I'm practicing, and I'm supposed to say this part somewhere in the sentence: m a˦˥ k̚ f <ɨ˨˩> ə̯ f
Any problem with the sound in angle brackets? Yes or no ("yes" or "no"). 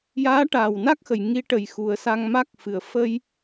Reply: no